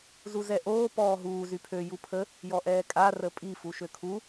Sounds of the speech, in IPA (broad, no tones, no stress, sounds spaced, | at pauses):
z u z ɛ ʔ oː p ɔː ɦ uː z y pʰ ø j u pʰ ə | j ɔ ʔ ɛː kʼ a r ə pʼ i f u ʃ ø kʰ u